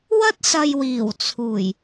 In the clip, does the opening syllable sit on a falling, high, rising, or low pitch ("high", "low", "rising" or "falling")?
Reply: high